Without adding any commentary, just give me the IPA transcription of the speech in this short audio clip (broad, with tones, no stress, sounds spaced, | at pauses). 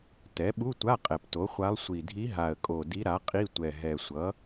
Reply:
t ɛ˩˥ ɓ u˧˥˧ tʷ a˧˥˧ qʼ ɛ˨˩ p t o˩˥ χʷ a˧˥ lˠ sʷ i˨˩ dʱ i˧˥ ɦ a˨˩ ə̯ kʼ o˨˩ d i˧˥ ɾ a˩˥ qʼ i˧˥˧ tʷ ɛ˨˩ ɦ ɛ˨˩ sʷ ʌ˩˥